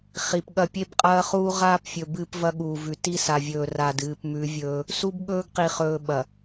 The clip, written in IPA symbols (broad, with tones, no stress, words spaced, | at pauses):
χi˨pɠɐ˦ pʲe˦bqʼɐː˦χuː˦ ʁaː˦pfʲɵ˨ bɨː˦pvɐ˦ɠuː˨vʉ˨ ti˦sa˨vʲɵː˨ ra˨d ɨː˨pmʉ˨˦vʲɵː˦ | su˦bɠɵː˦ɡqi˨χɵː˨ ɓɐ˨